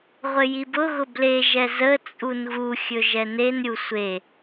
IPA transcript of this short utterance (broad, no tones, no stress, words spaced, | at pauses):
ʁʷɘjibʊɣʊ bleʒɛ zə t͡sʼunɣuxʲɵ ʒɛnenɾʲu sʷe